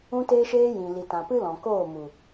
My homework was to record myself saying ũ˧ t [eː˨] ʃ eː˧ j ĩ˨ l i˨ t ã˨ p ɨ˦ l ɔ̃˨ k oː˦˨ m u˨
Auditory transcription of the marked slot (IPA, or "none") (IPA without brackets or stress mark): eː˧